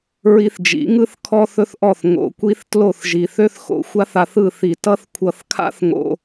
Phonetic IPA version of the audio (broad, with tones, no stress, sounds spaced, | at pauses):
ɹ i˧ θ d͡ʒ ḭ˨˦ ŋ ɯ˦ θ kʰ ɔ˦ θ ɵ˦ θ ʔ ɔ˦˨ θ ŋ o̰˨ kʷ i˦ θ t l o˦˨ θ ʒ i˨ θ ø˦ θ x o̰˧ xʷ a˦ θ a˧ θ ɯ˦˨ θ i˨ t ʌ˦ θ kʷʰ ʌ˧ θ kʰ a̰˦ θ ŋ o̰˧